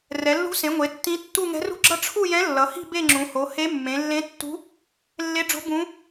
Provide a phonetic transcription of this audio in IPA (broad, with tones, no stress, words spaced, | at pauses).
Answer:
rɛ˩˧lːṳ˧˥sẽ˩˧ ŋʷe˩˧ tːĩ˧˥ tːu˥˧ ŋɛ̤˧˥rṳ˥˧ɡ͡ǁʌ˥˧ ʈ͡ʂʰu˥˧jɛ̃˧˥ lːʌ˩˧hi̤˥˧ be˥˧ŋ͡ǁũ˩˧ho˩˧ he˧˥mːẽ˩˧lːẽ˧˥ tːṳ˧˥ | lːe˧˥ɖ͡ʐo̤˧˥ bũ˧˥